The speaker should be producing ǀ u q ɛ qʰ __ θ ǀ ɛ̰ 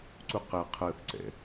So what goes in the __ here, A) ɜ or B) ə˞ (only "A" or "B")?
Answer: A